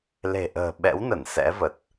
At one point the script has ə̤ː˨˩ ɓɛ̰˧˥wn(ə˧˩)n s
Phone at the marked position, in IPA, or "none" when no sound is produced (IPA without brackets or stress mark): ə˧˩